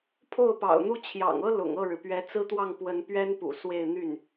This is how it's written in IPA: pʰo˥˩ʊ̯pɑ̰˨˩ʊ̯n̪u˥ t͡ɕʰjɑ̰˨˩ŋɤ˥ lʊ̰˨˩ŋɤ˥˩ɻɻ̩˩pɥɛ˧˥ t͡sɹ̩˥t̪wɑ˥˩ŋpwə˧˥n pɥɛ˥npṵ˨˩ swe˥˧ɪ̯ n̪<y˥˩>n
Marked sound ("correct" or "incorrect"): correct